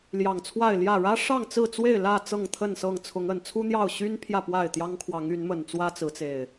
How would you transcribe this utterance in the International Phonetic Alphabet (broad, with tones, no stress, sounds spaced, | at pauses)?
l j ɑ˨˩ ŋ t͡sʰ w a˥˨ ɪ̯ l j ä˥˨ ɻ ä˦ ʂ ɑ˥˨ ŋ t͡s ɹ̩˥˨ t͡s w e˥˨ ɪ̯ l ä˥˨ t͡s ɤ˥˨ ŋ t̪ʰ ə˥˨ n s ɤ˥˨ ŋ t͡sʰ ʊ˨˦ ŋ ə˨˩ n t͡sʰ u˦ n̪ j ɑ˥˨ ʊ̯ ɕ y˦ n pʰ j ä˥˨ p w a˥˨ ɪ̯ t̪ j ɑ˦ ŋ kʰ w ɑ˨˦ ŋ y˨˦ n m ə˨˩ n t͡s w ä˦ t͡s ɹ̩˨˦ t͡s e˨˩ ɪ̯